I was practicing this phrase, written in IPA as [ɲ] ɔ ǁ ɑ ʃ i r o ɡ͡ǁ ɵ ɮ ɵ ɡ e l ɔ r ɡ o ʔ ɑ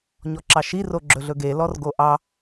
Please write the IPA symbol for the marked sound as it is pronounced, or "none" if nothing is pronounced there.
ɲ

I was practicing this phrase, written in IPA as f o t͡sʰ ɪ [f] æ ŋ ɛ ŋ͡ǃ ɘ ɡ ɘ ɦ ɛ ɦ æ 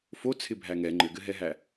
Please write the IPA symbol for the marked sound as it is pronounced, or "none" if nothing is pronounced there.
bʱ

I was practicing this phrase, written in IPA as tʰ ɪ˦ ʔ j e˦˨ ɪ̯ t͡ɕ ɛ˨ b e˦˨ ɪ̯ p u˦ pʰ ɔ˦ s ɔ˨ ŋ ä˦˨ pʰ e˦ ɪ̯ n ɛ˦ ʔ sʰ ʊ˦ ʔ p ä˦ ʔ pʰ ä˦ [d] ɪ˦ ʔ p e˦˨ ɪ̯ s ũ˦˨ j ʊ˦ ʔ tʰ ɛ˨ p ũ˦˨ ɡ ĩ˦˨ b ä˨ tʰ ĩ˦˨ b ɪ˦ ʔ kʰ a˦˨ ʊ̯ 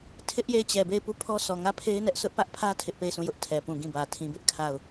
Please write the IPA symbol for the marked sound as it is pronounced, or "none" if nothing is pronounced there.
tʰ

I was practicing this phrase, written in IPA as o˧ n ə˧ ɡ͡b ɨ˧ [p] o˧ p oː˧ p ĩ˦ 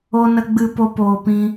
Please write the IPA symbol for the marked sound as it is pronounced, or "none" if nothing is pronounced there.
p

